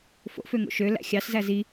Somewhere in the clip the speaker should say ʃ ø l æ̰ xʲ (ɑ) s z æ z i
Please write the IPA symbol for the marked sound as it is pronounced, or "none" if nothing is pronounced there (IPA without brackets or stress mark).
ɑ